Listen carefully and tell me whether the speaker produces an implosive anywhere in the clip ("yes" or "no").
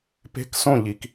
no